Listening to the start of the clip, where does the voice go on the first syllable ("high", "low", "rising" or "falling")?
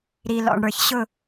low